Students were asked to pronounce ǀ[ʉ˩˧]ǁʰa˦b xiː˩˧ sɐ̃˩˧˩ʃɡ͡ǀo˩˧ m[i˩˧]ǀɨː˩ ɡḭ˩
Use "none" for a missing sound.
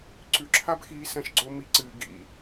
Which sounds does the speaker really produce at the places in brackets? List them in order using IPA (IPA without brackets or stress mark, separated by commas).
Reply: ʉ˩˧, i˩˧